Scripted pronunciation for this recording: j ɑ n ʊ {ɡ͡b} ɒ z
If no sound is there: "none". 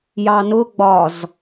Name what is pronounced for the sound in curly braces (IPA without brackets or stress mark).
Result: ɡ͡b